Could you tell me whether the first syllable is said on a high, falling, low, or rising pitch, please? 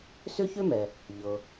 high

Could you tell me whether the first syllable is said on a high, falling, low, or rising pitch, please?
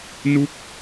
falling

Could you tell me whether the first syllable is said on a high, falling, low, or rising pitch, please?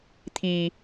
low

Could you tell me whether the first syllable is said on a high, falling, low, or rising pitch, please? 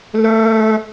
high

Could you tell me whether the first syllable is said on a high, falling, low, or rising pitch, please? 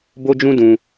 high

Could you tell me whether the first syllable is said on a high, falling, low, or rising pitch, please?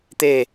falling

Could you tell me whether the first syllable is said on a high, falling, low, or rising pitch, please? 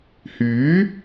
rising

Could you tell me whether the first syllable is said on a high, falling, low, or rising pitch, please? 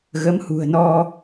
rising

